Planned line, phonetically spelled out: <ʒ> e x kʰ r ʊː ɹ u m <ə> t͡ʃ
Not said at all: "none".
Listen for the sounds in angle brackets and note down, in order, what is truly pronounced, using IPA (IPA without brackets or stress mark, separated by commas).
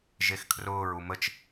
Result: ʒ, ə